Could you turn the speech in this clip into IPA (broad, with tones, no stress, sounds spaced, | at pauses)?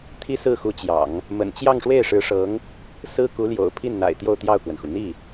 t̪ʰ i˥ s ɹ̩˥˩ x u˧˥ t͡ɕ j ɑ̰˨˩˦ ŋ | m ə̰˨˩ n t͡ɕ j ɑ˥˧ ŋ ʂ w e˥˩ ɪ̯ ʂ ɻ̩˧˥ ʂ ɤ˧˥ ŋ | s ɹ̩˥ k u˧˥ l j o̰˨˩ ʊ̯ pʰ i˥˩ n n̪ a̰˨˩ ɪ̯ t̪ j o˥˧ ʊ̯ t̪ j ɑ˥˩ ʊ̯ k w ə˩ n x u˩ n̪ i˥˩